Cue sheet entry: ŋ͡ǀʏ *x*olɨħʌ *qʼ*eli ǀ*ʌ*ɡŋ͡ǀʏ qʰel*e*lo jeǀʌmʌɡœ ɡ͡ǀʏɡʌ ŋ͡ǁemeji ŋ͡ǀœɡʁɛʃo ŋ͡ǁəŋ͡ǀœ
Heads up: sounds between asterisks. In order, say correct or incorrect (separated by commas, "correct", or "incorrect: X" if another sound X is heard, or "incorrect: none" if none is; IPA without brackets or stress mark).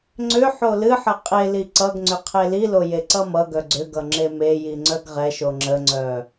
incorrect: ħ, correct, correct, incorrect: i